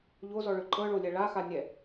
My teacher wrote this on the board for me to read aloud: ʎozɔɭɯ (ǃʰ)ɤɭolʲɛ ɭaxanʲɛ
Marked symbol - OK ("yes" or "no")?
no